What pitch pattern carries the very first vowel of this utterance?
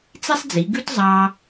high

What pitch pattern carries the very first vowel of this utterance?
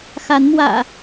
rising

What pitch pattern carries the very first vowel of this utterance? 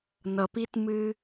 low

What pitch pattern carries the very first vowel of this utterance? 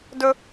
high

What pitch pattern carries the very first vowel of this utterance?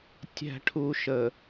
low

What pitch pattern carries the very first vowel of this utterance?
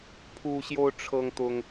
high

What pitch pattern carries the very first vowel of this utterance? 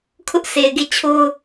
high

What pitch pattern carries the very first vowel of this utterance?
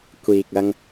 low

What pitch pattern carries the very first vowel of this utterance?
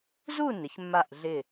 falling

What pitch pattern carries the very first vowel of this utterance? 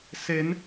rising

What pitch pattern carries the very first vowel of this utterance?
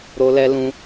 high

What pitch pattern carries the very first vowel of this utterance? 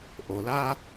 low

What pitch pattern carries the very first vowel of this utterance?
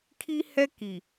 high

